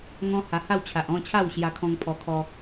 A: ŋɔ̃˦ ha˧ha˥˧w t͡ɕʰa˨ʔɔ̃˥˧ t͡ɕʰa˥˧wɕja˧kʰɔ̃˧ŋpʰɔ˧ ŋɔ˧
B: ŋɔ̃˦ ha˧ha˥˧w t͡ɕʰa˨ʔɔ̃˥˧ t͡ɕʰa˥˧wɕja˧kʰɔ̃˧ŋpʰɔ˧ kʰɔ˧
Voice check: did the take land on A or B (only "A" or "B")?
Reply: B